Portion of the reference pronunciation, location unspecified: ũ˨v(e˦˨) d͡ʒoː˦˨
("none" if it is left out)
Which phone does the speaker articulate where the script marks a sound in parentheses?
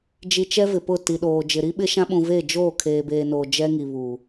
e˦˨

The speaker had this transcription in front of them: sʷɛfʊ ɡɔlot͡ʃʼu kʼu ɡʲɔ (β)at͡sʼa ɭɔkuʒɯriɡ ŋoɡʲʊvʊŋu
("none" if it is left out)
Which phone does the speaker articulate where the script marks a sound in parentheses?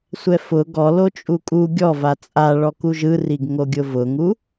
v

